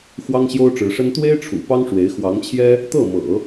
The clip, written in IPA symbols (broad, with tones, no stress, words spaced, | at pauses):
xwɑ˥ŋɕjo˥ʊ̯ʈ͡ʂɻ̩˧˥ʂə˥n t̪we˥ɪ̯ʈ͡ʂʰṵ˨˩ pɑ˥ŋʂwe˧˥ɪ̯ xwɑ˧˥ŋt͡ɕʰjɛ˥ | t̪ɤ˥˩mɤ̰˨˩˦